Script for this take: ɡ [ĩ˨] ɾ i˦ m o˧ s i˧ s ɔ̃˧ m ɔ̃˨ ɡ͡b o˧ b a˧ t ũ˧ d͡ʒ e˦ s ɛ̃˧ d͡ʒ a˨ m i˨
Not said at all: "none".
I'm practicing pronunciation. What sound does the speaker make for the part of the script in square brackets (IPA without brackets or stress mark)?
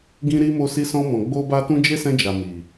ĩ˦